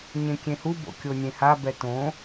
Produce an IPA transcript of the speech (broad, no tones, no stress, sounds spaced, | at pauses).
ɲ ẽ kʲ ẽ h u b o̰ kʲ o nʲ ẽ h a b ɛ t õ